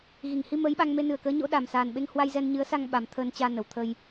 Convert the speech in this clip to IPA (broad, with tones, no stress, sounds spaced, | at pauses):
ɣ i˧˩ ŋ h i˧ m əː˨˦ j ɓ a˧ ŋ m e˧ n ɨ˨˩ ə̯ k əː˨˦ ɲ o̰˧˥ ɗ a˨˩ m s aː˨˩ n ɓ e˧ ŋ h w a˧ j z ɛ˧ n ɲ ɨ˨˦ ə̯ s a˧ ŋ ɓ a˨˩ m t̪ʰ əː˧ n t͡ɕ aː˧ n ə˧˩ w t̪ʰ ə˧ j